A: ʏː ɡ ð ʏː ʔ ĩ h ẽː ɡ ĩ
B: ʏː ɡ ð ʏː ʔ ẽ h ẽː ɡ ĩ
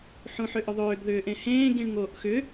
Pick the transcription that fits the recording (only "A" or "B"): B